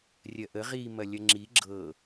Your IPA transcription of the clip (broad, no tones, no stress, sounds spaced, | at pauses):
rʲ ɜ ʔ ə ʁ i m ɐ lʲ ɐ ŋ͡ǁ i ɡ͡ǁ ɤ